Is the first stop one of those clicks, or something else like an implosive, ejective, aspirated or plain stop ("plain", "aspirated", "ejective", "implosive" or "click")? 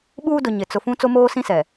implosive